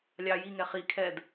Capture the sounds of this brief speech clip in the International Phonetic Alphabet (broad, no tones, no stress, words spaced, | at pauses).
lʲɑ jiŋɛ χi kʰɛd